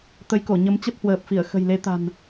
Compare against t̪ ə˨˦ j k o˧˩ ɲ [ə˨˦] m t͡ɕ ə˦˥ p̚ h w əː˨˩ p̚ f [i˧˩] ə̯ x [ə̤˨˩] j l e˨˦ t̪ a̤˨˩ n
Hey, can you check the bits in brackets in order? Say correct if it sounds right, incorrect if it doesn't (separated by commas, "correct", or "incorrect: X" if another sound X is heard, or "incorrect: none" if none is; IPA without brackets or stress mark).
correct, correct, correct